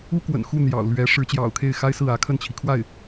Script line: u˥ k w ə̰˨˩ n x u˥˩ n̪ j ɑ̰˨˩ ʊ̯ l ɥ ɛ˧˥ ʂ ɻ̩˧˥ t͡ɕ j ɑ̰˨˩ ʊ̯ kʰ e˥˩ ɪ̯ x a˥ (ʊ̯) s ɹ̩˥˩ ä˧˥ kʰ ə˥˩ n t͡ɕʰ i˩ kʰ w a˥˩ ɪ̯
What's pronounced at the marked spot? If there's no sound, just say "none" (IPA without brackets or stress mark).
ɪ̯